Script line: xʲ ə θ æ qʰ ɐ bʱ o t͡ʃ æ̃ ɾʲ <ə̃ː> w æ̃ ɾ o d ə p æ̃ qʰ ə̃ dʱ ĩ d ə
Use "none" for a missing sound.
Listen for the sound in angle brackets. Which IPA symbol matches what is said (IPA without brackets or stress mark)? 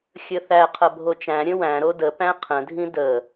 ə̃